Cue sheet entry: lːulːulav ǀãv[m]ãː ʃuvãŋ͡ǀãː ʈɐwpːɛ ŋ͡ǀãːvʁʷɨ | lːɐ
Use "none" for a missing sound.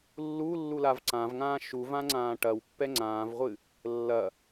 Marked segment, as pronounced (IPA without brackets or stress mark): ŋ